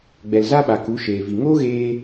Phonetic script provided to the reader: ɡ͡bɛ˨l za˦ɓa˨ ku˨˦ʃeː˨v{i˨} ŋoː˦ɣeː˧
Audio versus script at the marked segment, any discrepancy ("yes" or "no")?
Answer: no